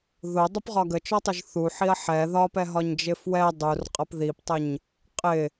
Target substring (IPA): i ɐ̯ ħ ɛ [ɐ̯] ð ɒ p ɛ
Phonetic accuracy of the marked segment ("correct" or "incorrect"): incorrect